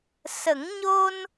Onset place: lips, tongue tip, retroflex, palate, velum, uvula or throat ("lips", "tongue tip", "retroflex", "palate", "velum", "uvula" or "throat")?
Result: tongue tip